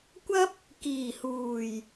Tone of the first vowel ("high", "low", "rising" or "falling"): high